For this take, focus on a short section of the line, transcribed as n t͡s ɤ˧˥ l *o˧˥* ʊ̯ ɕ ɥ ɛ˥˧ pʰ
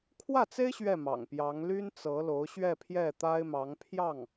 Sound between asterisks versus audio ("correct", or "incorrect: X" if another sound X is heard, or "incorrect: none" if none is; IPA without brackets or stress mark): correct